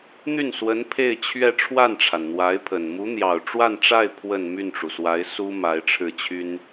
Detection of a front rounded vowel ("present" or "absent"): present